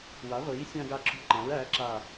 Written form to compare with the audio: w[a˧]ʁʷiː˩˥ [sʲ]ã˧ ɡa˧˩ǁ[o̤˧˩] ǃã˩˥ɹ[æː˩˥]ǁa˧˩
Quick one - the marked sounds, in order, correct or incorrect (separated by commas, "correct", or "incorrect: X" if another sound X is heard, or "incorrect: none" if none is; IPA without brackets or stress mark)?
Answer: incorrect: a˩˥, correct, correct, correct